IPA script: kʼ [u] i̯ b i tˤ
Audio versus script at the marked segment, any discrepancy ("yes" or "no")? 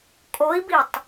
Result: yes